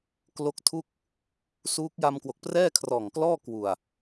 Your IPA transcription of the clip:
k l o˦˥ k̚ tʰ u˥˩ k̚ | s uː˦˥ k̚ j a˧ m k w o˨˩ k̚ p r ɛː˥˩ kʰ r ɔː˨˩ ŋ k l ɔː˥˩ k w u˨˩ a̯

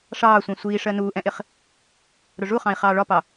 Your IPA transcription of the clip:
ʂ ɑː sʷ ɛ̃ sʷ iː ʂ ɜ n uː ʔ ɛ̃ ʔ ɪ χ | ɾ ʊ ʐ u χ ɑ̃ i̯ χ ɑː ɭ ɒ p ɑ

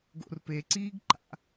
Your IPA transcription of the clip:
ɡ o̰ r p e ǀ iː ɡ ǃ a̰

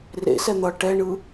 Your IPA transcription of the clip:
r ḛ s ɛ n̪ ʌ ʈ ɛ ɳ ɯ

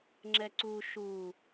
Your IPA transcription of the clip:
ŋ͡ǁ ɛ ǀ u ʃ u

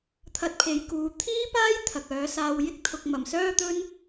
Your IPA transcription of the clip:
t̪ʰ ɐ˧ t̚ pʰ e˨˧ j k uː˨˧ t̪ʰ iː˥ p aː˥ j t̪ʰ ɐ˨ k̚ œː˨˧ s aː˧ w j ɪ˥ k̚ t̪ʰ ʊ˨ k̚ m ɐ˨˩ m s œː˥ t̪ ɵ˥ n

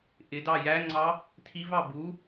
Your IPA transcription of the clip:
ʔ ɪ d ɑ j æ ŋ͡ǀ ɑ | tʰ i v ɑ b u

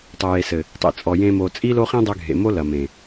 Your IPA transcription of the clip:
tˤ ɘ˨ j e˨ s ɘ˨ | tˤ ḭ˨ t͡sʼ ɔ˨ j ẽ˧ m o˨ t͡sʼ i˦ l o˦ χ ĩ˦ dˤ ɨ˧ ɡʱ ḛ˨ m o˦ l ɐ˨ m ẽ˨

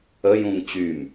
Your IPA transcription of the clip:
ə j ũ ŋ t͡ɕ y m

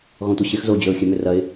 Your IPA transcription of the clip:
ɣ ɔ̃ tʷ ɐ ɕ ɪ x z o d͡ʑ ø ʊ̯ xʲ ø m ʏ r ɐ ɪ̯

